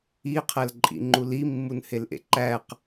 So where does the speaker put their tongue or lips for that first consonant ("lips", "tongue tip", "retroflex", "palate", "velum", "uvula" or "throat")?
uvula